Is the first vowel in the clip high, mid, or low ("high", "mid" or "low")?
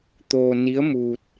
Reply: mid